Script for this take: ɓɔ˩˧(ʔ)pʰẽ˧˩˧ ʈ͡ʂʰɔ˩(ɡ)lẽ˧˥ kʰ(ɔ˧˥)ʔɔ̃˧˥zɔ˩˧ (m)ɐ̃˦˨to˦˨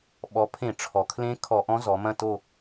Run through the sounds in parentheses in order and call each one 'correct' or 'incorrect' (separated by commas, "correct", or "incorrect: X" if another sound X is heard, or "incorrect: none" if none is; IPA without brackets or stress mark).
incorrect: none, incorrect: kʰ, incorrect: ɔ˧˩˧, correct